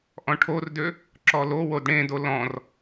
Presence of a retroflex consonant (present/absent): present